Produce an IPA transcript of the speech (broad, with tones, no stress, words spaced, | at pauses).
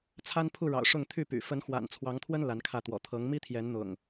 t͡sʰa˦npʰu˥˨ɻɑ̰˨˩ʊ̯ ʂʊ˥˨ŋt̪ʰy˥˨py̰˨˩ fə˨˦nxwa̰˨˩nt͡sʰwɑ˨˦ŋt̪ʰwə˦n la˨˦nkʰä˥˨t̪wɔ̰˨˩ t̪ʰɤ˨˦ŋ mi˦t̪ʰjɛ˨˦nn̪ʊ̰˨˩ŋ